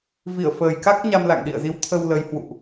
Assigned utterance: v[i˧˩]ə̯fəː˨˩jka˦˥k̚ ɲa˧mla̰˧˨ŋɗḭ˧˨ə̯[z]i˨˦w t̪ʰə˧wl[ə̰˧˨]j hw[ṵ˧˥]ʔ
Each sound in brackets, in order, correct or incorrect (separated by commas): correct, correct, incorrect, incorrect